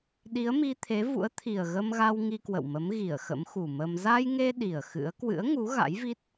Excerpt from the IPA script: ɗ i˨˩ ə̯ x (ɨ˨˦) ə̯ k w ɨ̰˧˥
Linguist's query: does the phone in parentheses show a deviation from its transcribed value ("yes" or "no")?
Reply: yes